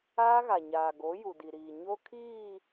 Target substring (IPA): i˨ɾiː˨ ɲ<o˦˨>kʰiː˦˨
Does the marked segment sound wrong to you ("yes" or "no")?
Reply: yes